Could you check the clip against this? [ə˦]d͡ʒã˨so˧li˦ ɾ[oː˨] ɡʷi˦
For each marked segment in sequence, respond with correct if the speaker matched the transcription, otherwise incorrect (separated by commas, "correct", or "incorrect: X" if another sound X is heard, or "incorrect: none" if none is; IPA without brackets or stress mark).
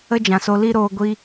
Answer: correct, incorrect: oː˧